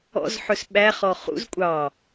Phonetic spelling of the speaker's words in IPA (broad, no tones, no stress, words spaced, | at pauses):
ɔ̰zħɵs ɓæχɔ χṵz kʷʼɑ